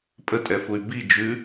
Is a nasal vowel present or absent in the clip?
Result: absent